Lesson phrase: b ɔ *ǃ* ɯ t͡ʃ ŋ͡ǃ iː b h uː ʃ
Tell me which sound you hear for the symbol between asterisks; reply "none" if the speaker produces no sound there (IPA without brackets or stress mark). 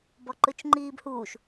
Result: ǃ